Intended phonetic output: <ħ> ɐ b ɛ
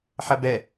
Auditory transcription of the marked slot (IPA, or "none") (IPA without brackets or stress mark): ħ